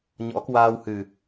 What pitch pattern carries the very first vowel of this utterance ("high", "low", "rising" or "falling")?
rising